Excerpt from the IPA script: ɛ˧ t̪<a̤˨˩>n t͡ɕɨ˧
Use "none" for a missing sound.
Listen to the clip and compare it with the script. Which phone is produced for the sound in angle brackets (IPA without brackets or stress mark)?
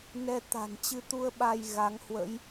a̤˨˩